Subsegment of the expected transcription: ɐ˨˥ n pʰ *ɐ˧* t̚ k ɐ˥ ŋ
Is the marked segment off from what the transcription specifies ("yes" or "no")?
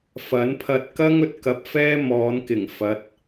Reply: no